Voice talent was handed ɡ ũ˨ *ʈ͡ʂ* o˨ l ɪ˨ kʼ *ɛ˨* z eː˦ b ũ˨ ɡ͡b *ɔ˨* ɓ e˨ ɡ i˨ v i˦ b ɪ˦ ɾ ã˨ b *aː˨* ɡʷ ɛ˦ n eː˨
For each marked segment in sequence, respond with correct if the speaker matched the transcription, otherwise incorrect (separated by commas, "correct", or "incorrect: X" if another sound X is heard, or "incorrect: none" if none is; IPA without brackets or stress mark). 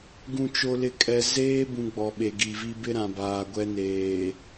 incorrect: t͡ʃ, correct, correct, correct